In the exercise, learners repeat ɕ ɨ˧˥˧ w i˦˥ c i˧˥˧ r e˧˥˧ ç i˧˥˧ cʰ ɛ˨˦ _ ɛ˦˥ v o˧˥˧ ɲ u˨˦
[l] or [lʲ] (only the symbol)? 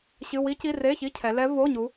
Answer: l